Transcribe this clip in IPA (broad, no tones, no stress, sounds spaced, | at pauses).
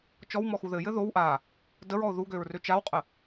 t͡ʃ ɔ w m ɔ x u ð ɘ j ɘ ð o w ʔ a | d ə ɹ ɔ ʊ̯ ð u ɡ ø ɹ r ø t͡ʃ a w qʼ ə